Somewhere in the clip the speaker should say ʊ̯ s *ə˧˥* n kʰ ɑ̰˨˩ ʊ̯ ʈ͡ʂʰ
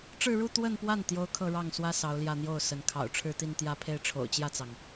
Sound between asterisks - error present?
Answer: no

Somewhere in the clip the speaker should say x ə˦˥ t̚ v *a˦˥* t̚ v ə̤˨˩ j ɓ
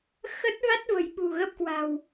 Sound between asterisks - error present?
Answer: no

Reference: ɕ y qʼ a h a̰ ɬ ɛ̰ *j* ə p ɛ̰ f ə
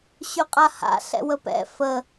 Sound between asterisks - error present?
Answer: yes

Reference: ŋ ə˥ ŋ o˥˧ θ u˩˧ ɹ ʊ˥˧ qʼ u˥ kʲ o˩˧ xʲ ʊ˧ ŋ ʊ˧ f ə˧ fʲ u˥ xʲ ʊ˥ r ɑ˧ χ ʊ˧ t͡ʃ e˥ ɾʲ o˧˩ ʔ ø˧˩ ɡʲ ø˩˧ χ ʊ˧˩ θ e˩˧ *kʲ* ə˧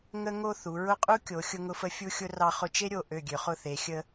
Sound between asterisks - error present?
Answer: yes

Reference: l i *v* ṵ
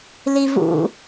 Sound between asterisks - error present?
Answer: no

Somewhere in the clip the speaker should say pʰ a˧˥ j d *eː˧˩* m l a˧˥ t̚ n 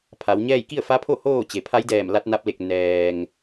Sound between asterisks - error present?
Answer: yes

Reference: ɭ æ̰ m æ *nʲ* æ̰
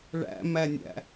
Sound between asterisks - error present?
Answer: no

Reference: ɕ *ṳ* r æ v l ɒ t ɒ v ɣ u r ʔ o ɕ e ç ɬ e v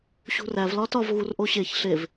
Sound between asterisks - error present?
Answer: no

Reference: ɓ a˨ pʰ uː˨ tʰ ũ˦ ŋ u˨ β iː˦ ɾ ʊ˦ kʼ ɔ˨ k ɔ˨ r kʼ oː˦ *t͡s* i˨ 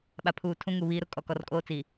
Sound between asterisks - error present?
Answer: no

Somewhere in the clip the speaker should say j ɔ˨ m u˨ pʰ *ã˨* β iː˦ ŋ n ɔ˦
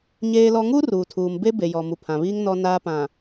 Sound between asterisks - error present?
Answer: no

